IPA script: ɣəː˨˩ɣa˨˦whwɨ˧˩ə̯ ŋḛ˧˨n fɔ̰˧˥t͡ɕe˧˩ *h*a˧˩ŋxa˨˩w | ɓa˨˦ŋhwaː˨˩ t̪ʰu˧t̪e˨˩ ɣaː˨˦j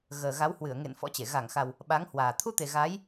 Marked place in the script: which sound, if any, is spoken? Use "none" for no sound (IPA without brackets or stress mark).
ɣ